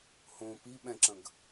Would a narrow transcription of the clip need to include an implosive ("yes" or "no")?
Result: yes